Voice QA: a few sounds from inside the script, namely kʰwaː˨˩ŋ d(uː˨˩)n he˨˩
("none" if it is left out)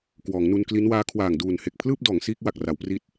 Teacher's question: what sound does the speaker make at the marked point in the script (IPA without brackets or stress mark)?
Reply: uː˨˩